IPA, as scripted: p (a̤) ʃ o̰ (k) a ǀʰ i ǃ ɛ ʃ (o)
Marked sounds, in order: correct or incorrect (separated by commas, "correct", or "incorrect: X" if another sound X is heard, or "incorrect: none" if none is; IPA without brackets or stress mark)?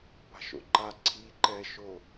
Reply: correct, incorrect: ǃ, correct